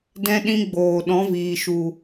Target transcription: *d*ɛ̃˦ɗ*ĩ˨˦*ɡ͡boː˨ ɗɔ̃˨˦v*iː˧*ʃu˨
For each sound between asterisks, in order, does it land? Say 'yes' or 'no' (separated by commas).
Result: yes, no, no